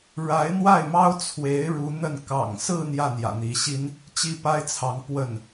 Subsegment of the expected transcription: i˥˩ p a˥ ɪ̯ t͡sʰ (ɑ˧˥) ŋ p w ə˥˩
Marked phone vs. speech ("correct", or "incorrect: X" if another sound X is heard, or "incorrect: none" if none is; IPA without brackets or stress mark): correct